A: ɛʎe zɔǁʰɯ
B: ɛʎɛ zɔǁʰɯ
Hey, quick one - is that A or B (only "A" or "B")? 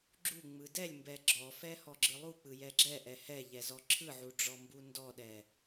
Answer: B